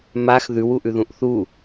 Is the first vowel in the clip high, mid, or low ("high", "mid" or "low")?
low